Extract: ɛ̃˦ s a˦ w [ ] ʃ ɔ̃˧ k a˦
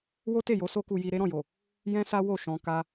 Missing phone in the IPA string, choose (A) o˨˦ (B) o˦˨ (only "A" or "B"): B